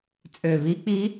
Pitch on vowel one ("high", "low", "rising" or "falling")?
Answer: low